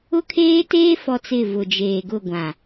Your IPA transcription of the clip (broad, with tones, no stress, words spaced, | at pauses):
ʊ˦kʰeː˦teː˦ fɔ˦t͡sɪ˦˨ vʊ˨d͡ʒeː˨ɡʊ˦˨ ɡʷã˨